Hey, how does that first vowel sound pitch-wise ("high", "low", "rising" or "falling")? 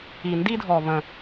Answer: low